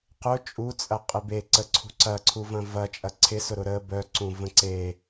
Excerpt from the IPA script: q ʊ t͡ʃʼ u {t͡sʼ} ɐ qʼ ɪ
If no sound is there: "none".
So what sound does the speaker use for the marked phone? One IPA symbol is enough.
t͡sʼ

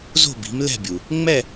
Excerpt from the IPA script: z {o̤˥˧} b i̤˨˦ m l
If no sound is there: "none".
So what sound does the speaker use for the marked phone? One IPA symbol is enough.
o̤˥˧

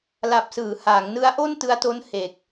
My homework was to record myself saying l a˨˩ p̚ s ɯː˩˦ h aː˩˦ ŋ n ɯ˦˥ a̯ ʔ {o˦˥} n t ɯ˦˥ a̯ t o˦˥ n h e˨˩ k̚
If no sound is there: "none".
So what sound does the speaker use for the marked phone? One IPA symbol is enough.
o˥˩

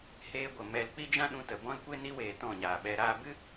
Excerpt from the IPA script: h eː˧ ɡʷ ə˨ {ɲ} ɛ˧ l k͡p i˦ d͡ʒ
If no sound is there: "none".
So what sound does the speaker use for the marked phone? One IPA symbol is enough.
m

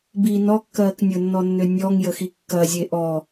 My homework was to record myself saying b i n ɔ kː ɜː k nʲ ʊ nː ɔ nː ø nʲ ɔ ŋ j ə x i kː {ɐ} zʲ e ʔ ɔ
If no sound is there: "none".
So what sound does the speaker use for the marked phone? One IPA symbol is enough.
ɐ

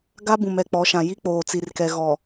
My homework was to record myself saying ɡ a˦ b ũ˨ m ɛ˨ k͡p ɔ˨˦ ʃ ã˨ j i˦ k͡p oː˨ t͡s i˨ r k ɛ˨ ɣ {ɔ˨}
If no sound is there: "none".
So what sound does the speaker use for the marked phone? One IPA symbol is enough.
ɔ˨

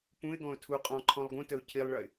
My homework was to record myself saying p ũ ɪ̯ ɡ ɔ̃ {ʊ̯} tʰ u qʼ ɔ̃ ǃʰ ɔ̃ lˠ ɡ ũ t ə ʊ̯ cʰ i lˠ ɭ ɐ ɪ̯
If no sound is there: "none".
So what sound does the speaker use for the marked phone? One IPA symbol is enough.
ʊ̯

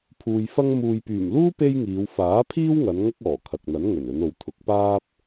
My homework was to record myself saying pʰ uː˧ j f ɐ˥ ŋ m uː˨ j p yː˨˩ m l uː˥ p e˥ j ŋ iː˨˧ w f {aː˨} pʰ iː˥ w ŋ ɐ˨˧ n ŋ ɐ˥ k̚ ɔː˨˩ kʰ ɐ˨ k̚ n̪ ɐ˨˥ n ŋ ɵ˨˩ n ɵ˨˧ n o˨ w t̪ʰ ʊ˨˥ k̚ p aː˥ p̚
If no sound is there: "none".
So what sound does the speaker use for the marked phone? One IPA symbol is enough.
aː˨˥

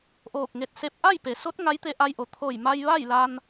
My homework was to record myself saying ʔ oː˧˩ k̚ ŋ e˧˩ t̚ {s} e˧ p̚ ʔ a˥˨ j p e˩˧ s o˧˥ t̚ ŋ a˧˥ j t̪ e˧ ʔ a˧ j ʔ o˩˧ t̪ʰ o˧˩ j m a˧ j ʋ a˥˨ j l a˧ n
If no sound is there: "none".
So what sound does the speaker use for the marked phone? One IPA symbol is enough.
s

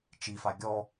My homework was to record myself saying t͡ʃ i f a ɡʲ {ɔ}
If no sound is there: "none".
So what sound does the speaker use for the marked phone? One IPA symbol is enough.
ɔ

